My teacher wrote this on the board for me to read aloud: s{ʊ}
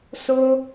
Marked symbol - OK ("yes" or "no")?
yes